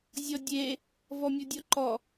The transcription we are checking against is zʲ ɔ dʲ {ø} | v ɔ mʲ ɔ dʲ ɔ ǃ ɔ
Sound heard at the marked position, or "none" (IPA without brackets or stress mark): e